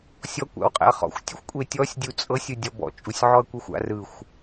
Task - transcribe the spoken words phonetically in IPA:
sʲ ɔ kʷ a̰ w qʼ ɛ̰ ɐ̯ χ ɔ̰ xʷ tʲ u xʷ kʷʼ e tʲ ɔ sʲ dʲ u t͡sʼ ɤ sʲ ɯ dʲ ɔ b ɔ̰ t͡ʃʼ u sʲ ʕ ɔ ɐ̯ kʷ ɛ xʷ a̰ r ɯ xʷ

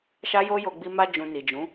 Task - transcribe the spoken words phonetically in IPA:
ʃ a˦ j o˦ j o˧ ɡ͡b i˧ m a˧ d͡ʒ ũ˨ n i˨ d͡ʒ ũ˨˦

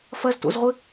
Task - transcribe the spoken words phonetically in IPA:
f ɐ z t o̰ z ʁʷ ɘ

